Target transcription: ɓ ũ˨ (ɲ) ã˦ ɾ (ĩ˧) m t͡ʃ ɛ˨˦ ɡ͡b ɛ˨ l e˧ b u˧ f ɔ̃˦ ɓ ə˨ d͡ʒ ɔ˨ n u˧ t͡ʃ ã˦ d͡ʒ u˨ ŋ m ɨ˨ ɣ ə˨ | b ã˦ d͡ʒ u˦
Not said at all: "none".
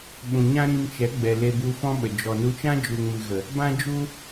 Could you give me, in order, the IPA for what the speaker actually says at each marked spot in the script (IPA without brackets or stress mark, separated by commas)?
ɲ, ĩ˧